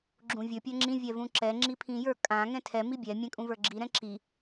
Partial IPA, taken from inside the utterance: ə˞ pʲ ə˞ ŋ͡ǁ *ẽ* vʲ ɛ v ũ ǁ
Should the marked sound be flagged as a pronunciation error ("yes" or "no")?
yes